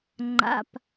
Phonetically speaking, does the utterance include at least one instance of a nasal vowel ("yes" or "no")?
no